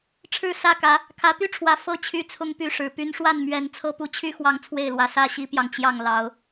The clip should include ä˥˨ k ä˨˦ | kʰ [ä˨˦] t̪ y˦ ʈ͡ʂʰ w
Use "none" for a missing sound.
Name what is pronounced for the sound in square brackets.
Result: ä˨˦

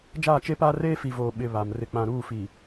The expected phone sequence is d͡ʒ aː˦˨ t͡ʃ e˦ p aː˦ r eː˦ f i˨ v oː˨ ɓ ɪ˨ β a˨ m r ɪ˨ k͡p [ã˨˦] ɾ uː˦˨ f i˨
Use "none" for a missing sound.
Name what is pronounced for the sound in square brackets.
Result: ã˨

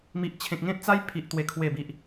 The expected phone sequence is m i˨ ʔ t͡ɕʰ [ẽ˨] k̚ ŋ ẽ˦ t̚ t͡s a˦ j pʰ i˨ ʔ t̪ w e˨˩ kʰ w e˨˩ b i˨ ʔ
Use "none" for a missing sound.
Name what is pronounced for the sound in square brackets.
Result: ẽ˨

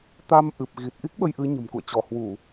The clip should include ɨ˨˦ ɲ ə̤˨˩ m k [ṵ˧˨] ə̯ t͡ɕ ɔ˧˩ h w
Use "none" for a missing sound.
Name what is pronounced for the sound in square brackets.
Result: ṵ˧˨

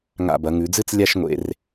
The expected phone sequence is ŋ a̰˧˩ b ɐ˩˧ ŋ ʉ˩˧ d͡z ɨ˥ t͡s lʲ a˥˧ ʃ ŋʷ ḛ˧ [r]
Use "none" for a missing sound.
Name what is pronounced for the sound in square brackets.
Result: r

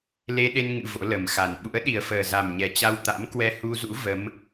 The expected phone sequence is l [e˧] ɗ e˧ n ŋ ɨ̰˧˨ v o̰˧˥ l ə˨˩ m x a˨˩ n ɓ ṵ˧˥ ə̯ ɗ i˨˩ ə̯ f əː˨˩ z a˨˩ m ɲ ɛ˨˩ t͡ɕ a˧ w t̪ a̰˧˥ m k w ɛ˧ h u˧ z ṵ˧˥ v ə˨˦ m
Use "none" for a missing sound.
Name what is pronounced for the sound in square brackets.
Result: e˧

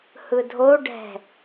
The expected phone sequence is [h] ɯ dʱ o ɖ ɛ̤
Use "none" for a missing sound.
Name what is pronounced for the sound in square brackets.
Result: h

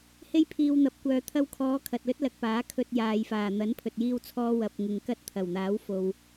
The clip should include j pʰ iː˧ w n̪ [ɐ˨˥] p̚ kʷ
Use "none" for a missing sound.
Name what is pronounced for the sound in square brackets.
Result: ɐ˨˥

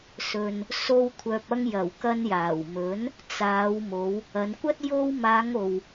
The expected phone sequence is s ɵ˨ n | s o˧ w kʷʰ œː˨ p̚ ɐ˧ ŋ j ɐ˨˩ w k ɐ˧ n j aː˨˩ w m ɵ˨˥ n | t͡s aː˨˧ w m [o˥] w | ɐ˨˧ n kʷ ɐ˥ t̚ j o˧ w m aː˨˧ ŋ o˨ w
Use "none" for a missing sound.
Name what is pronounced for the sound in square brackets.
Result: o˨˧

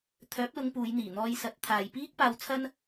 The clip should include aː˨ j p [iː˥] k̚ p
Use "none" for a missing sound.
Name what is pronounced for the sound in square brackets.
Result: iː˥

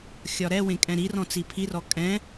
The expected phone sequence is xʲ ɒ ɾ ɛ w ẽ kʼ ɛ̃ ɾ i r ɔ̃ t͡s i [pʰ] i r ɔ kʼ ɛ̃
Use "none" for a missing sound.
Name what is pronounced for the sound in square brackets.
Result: pʰ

